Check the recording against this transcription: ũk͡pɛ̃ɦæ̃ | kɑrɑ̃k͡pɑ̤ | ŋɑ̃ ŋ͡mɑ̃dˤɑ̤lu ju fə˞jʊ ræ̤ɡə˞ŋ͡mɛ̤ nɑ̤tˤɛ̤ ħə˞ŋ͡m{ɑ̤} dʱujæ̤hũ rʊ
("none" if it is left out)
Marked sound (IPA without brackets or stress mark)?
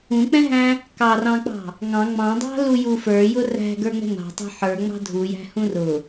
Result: ɑ̤